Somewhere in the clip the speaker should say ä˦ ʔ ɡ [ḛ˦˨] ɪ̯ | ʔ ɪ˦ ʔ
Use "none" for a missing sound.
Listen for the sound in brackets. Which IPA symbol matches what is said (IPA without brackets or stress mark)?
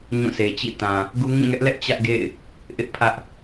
ḛ˦˨